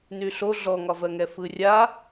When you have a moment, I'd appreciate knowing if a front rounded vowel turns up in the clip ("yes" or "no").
yes